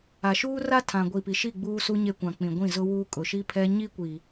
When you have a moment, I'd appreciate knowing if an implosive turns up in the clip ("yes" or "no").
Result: no